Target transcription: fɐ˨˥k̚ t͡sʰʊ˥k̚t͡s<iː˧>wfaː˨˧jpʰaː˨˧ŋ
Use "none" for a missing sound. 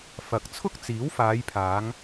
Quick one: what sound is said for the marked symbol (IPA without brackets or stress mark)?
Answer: iː˨˥